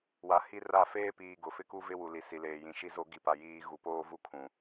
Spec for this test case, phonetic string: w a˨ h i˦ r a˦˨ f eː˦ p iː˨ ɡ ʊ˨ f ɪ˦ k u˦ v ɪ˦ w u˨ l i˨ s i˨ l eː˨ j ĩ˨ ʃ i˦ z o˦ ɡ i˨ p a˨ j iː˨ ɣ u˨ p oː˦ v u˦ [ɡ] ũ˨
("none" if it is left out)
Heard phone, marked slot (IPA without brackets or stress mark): kʰ